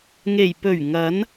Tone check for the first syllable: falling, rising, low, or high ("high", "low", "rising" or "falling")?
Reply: low